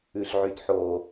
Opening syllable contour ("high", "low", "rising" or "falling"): low